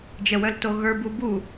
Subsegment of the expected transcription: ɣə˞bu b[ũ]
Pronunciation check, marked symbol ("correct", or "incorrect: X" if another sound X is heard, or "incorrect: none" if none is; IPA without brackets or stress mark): incorrect: u